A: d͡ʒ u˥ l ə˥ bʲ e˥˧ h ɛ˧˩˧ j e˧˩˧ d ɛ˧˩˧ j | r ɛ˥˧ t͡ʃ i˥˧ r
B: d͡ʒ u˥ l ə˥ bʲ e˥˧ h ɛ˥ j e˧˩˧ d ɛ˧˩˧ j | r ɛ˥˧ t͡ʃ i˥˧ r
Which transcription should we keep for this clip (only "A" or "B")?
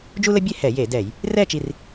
A